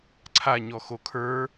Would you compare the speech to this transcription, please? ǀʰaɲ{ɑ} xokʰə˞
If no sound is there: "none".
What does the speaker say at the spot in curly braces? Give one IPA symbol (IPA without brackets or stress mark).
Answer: ɔ